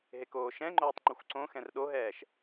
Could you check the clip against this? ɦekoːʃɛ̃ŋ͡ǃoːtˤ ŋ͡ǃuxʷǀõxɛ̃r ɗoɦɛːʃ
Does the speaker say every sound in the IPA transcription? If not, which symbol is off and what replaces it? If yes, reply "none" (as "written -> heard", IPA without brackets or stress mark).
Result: none